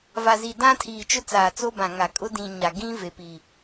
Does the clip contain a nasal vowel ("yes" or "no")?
yes